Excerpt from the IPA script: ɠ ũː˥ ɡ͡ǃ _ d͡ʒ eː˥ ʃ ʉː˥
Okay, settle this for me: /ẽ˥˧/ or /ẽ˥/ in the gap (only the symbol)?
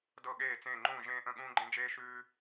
ẽ˥